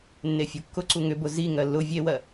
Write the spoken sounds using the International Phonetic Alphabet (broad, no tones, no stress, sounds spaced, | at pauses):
nː e fʲ u kː ʊ ǀ u ŋ ʏ b ʊ z i ŋ ɜ lː ʊ vʲ e w ɜ